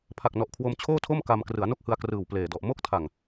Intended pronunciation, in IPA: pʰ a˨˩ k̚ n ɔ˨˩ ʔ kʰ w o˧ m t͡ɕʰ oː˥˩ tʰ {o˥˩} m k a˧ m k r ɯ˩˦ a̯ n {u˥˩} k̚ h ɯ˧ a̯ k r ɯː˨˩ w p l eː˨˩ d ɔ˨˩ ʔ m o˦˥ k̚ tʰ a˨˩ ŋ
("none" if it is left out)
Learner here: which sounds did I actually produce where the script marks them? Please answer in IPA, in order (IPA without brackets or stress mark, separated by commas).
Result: o˥˩, o˥˩